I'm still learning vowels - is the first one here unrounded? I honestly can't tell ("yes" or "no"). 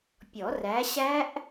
no